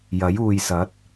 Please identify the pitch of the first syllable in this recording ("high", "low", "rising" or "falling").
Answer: rising